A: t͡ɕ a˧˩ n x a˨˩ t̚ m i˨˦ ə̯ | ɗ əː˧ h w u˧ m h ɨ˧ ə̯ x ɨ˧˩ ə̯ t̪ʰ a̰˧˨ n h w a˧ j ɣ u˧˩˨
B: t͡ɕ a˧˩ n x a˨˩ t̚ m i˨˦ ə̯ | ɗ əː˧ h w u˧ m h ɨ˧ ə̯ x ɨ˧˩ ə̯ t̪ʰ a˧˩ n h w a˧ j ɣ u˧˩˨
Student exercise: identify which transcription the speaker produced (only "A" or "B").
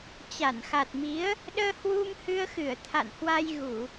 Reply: A